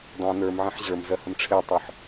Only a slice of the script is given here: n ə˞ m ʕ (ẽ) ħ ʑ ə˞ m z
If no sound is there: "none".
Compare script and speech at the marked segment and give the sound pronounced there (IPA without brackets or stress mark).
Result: ẽ